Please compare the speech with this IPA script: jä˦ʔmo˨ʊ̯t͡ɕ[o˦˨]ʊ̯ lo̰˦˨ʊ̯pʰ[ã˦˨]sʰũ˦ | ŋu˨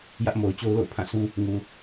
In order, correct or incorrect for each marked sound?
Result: incorrect: o˦, correct

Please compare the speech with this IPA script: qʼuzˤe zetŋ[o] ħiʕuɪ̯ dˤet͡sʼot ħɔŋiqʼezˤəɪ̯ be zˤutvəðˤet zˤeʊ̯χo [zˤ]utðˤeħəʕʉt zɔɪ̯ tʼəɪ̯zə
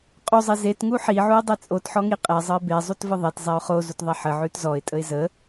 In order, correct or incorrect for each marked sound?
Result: incorrect: u, incorrect: z

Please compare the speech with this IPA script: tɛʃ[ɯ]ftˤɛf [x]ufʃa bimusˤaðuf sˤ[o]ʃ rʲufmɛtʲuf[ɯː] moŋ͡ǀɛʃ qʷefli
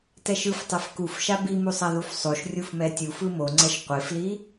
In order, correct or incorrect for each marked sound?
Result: correct, incorrect: k, correct, incorrect: ɯ

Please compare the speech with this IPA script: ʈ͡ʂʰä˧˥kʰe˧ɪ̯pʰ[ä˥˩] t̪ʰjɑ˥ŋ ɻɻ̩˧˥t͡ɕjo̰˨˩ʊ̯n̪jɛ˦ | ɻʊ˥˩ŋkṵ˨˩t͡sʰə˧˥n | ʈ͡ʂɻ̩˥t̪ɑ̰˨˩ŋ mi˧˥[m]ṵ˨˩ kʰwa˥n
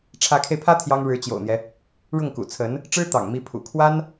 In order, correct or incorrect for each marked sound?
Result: incorrect: ä˥, incorrect: pʰ

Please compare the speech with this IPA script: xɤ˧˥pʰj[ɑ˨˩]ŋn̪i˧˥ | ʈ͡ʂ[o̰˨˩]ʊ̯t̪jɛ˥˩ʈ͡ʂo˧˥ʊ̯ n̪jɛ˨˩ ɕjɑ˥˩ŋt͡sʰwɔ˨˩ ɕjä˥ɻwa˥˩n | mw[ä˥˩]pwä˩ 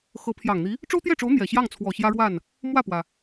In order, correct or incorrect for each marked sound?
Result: correct, incorrect: o˥, correct

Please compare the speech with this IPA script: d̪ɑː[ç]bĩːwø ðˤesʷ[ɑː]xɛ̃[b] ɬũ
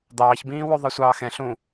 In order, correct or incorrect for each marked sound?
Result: correct, correct, incorrect: none

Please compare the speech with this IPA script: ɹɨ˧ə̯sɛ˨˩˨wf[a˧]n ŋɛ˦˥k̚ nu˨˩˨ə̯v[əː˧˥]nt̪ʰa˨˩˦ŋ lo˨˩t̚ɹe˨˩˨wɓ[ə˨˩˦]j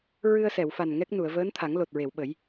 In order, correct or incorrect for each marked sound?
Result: incorrect: a˨˩, correct, correct

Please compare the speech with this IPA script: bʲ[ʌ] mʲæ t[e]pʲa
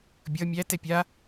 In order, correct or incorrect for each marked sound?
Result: correct, incorrect: ɛ

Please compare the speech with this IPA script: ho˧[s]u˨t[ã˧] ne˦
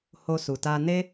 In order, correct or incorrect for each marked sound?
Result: correct, incorrect: a˧

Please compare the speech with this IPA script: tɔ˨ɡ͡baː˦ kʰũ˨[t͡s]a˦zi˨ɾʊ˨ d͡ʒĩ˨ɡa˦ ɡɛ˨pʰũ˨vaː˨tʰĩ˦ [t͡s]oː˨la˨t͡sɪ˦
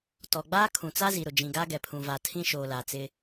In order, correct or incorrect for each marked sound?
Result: correct, incorrect: ʃ

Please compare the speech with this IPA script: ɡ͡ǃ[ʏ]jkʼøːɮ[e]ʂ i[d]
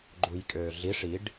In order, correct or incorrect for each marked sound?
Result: incorrect: u, incorrect: i, incorrect: ɖ

